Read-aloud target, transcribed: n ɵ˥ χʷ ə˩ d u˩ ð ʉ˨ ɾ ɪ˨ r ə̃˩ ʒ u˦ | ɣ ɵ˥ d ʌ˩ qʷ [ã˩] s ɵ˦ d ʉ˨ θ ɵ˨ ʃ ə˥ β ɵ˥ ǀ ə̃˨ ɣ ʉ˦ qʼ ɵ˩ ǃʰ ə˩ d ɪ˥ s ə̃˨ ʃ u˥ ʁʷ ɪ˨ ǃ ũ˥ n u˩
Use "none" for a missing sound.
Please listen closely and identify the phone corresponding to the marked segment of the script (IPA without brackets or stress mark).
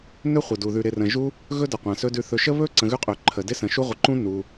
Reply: ã˩